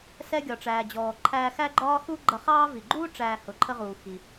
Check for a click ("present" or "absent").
present